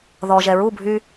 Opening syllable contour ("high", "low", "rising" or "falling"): low